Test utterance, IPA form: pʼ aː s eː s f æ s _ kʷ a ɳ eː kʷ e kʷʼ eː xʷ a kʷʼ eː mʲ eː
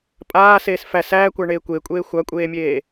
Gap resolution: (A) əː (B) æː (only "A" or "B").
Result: B